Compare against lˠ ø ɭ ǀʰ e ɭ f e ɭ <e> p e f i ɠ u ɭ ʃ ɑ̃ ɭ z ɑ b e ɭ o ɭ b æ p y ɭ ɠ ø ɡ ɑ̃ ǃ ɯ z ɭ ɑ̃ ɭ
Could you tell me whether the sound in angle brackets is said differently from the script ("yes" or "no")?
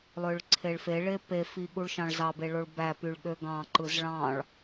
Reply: no